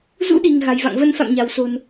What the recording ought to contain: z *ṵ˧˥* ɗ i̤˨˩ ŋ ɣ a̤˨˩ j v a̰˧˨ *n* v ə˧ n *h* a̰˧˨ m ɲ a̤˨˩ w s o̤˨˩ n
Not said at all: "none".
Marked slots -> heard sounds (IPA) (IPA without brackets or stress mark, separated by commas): ṵ˧˥, ŋ, f